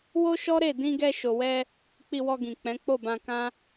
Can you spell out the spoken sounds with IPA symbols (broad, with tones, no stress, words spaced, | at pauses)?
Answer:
wo˦ʃɔ˦ɾe˦˨ dĩ˧ɡɛ˧ ʃo˨wɛ˧ | k͡pi˧wɔ˧ɡĩ˨ k͡pɛ̃˨˦ k͡po˦˨bã˧kã˦